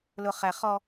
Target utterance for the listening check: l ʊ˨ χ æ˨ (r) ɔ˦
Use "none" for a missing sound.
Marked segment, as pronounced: χ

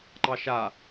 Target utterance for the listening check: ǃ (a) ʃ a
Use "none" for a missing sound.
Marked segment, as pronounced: ɑ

